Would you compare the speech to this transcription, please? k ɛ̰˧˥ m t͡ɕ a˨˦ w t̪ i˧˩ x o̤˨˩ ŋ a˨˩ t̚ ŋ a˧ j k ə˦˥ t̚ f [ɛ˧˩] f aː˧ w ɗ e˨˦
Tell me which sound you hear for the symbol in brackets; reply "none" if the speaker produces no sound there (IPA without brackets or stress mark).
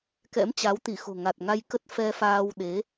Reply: ɛ˧